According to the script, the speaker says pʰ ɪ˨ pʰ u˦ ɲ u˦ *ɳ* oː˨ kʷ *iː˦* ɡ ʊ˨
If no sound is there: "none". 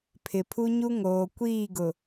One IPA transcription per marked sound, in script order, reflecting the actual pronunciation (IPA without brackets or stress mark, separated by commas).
ŋ, iː˦˨